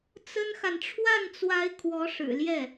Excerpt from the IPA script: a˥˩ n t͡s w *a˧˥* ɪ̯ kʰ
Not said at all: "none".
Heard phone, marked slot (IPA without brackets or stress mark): a˧˥